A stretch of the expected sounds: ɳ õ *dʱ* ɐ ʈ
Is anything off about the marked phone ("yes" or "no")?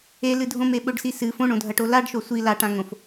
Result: no